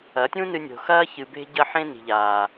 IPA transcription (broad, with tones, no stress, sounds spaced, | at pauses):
ɐ˨˦ tʲ ũ˦ n ɨ˧ nʲ o̤˨ x ɐː˦ ç ɨ˨ b e̤˧ ɟ ɐ˧ ħ ẽ˧ n i̤˨ ʎ aː˨